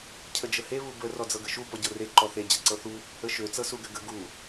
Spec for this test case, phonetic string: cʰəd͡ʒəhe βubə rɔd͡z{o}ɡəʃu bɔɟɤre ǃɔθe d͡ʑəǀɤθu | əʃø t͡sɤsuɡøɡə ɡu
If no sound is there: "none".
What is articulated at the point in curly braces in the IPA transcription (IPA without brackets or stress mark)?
ɤ